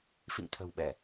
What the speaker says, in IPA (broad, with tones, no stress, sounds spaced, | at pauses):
f ḭ˧˨ ŋ t̪ʰ ə̤˨˩ w ɓ ɛ˧˩˨